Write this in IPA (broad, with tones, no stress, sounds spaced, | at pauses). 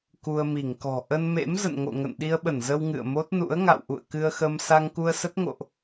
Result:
k u˧ ə̯ m i˧˩ ŋ k ɔ̤˨˩ ʔ ə˧ n m ḛ˧˥ m z ə̰˧˨ n ŋ o̰˧˨ ŋ ə̰˧˨ n ɗ i˧ ə̯ ɓ ə˧˩ n z ə˧ w ŋ ɨ̰˧˨ ə̯ m o˦˥ t̚ n ṵ˧˥ ə̯ ŋ a̰˧˨ w ʔ ṵ˧˨ ə̯ k ɨ˧ ə̯ x ə˧ m s a˧ ŋ k u˧ ə̯ s ə˦˥ t̚ ŋ o̰˧˨ ʔ